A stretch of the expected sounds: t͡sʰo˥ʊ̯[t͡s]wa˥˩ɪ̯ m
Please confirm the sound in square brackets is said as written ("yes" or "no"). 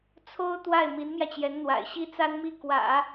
no